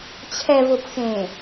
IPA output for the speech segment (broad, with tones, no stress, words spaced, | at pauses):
t͡ɕʰɛ˨vʊ˨pxẽ˨